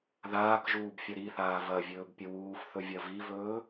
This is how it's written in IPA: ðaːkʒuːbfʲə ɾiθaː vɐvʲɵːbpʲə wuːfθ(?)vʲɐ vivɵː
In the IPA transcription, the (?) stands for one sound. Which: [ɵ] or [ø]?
ɵ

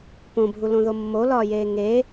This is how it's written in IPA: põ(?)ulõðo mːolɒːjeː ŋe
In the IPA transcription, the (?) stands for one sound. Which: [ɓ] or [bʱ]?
bʱ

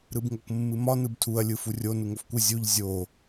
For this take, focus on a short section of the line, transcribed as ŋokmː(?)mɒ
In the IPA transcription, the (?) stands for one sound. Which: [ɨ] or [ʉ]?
ɨ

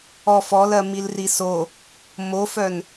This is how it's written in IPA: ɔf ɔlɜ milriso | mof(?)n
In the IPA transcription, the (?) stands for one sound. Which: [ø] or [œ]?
œ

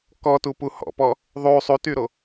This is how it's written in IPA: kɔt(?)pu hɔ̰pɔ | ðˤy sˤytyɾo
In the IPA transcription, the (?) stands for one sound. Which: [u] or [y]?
u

